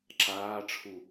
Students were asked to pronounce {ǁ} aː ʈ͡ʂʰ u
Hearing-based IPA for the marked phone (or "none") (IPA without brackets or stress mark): ǁ